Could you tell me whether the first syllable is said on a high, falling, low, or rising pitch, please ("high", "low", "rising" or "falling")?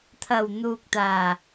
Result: low